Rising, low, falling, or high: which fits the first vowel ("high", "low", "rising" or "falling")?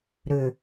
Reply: low